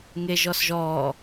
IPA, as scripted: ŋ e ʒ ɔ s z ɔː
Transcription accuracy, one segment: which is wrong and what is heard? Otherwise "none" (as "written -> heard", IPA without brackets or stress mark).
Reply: z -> ʒ